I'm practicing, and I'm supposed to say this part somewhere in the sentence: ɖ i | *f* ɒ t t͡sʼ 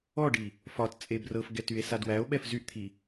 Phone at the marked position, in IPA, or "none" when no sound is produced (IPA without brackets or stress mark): f